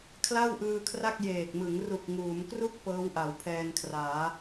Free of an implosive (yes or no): yes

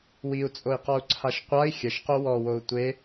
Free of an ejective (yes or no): no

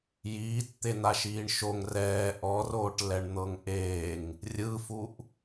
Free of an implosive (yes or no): yes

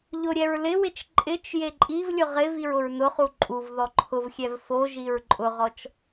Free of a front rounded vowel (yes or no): yes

